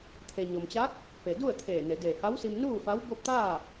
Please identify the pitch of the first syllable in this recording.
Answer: low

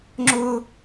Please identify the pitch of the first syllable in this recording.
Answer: high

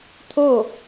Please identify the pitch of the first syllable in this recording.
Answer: falling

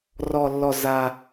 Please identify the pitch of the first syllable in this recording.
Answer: low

